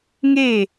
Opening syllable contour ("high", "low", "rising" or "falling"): falling